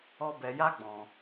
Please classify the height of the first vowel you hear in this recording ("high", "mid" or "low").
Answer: mid